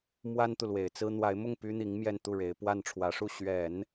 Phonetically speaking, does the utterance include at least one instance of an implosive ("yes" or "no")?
no